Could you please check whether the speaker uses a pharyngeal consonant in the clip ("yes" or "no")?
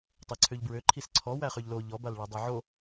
yes